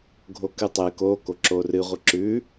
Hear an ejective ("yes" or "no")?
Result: no